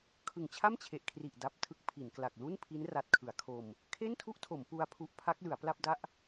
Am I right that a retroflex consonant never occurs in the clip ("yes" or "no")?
yes